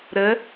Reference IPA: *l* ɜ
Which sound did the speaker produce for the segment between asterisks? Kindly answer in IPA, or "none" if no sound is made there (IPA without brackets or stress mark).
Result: ɾ